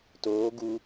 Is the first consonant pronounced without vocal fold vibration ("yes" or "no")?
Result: yes